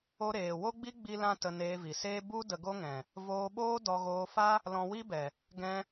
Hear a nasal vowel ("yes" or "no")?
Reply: yes